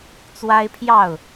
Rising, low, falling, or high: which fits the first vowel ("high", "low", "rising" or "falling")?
high